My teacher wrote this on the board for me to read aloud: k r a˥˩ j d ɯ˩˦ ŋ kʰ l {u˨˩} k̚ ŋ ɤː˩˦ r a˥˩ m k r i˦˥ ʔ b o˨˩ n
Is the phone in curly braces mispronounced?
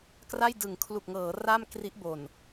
no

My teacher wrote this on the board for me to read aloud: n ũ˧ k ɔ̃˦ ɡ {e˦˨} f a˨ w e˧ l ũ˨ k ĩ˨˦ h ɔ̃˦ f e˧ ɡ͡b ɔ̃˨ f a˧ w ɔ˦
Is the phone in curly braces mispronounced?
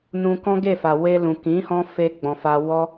no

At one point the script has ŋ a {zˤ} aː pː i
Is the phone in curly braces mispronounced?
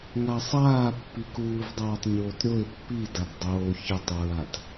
yes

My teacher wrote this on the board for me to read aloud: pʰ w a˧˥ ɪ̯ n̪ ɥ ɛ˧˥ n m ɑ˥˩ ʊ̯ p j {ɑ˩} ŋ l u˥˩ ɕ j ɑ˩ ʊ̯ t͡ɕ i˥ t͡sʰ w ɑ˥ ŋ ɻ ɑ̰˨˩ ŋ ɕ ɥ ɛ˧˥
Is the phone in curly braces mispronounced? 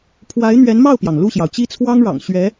no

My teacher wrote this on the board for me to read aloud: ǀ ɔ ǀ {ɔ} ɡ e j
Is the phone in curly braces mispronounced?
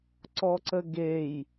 yes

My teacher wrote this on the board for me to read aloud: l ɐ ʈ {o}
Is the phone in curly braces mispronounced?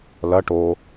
no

